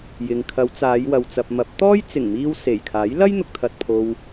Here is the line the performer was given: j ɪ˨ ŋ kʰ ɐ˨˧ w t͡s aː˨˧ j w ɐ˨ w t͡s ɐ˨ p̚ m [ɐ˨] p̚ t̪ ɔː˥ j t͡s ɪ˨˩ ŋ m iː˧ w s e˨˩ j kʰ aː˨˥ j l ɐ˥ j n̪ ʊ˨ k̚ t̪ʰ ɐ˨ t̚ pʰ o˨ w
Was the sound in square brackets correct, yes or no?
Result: no